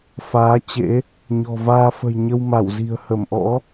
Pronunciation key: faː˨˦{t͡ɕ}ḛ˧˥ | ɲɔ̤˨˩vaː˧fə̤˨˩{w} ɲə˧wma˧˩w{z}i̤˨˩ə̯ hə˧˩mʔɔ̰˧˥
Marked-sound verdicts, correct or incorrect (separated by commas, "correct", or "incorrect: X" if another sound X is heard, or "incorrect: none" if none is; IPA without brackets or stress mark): correct, incorrect: j, correct